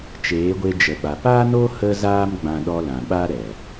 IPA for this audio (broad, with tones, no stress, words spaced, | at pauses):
t͡ʃeː˨˦ɡʷe˧d͡ʒə˨ɓa˨ paː˦no˦ hə˦zaː˦mɡ͡bã˧ɗɔ˧ lã˨ ɓaː˦ ɾɛ˨